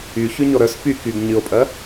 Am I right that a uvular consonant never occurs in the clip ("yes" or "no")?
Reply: yes